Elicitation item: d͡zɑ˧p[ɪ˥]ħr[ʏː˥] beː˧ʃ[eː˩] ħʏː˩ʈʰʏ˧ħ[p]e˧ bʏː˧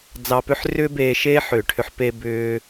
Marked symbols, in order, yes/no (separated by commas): no, yes, no, yes